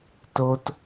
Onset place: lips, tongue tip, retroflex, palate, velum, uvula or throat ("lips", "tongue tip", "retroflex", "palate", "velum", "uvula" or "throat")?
tongue tip